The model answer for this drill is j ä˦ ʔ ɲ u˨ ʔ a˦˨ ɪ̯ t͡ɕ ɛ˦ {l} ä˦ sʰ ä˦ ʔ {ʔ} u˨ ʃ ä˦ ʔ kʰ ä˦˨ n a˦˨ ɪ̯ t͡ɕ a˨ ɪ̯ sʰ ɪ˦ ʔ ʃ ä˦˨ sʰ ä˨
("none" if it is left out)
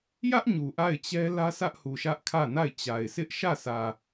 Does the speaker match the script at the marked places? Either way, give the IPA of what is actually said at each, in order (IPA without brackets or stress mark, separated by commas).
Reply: l, h